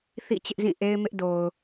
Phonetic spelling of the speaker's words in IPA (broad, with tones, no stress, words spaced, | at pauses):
θḭ˦˨t͡ɕɪ˦ʔzĩ˦˨ ʔe˦ɪ̯mɪ˦ʔdo˨ʊ̯